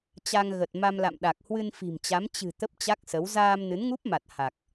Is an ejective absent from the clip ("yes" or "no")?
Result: yes